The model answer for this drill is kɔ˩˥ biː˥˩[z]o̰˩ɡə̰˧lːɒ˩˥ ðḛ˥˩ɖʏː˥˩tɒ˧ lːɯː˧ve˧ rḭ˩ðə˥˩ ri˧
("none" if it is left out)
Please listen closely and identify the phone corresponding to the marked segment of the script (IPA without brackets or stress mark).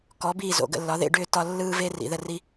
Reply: z